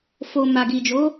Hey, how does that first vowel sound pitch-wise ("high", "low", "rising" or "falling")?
low